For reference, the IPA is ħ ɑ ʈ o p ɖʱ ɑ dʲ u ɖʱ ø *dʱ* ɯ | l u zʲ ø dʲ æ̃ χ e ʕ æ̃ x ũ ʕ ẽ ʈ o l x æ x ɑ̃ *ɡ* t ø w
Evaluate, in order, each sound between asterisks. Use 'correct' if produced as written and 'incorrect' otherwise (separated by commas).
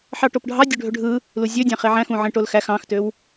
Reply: incorrect, incorrect